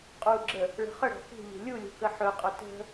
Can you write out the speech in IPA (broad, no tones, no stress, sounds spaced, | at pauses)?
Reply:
qʼ u ɡ͡ǁ ə | ɭ ə̤ χ ə ɽ ɔ̤ x ṳ ʎ ṳ lʲ u lʲ ṳ k ə ħ ɵ qʼ ɵ t ə̤